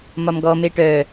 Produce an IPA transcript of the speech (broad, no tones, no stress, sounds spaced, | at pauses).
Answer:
m ɒ m ɡ ɔ m e ʈ œ